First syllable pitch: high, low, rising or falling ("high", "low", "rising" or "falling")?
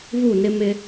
falling